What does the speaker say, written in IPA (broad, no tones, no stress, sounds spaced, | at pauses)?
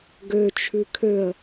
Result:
ɡ ø t͡ʃʰ ʉ kʰ ø ə̯